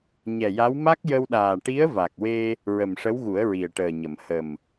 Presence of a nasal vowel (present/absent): absent